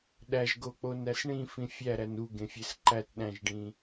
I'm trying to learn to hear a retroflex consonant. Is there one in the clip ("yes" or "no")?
yes